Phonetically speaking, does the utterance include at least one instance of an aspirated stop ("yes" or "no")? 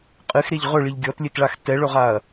no